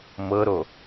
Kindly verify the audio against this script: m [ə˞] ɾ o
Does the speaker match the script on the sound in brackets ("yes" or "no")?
no